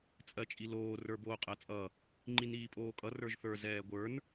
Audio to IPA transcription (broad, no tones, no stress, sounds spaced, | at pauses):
t͡sʼ ɜ t͡ʃʼ i l oː r ə˞ b oː qʼ ɜ t͡sʼ ʌ | ŋ͡ǃ i n iː pʼ oː kʼ ʌ r ə˞ ʒ θ ə˞ z ɛː ɡʷ ə˞ n